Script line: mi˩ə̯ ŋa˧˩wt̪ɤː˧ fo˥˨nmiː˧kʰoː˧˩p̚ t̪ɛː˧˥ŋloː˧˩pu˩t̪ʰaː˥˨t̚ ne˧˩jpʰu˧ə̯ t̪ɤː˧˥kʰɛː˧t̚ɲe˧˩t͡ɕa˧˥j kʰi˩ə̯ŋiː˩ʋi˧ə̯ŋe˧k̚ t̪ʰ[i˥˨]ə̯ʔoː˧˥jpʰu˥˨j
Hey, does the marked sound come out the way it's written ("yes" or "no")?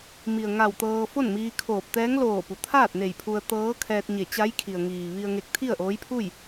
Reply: yes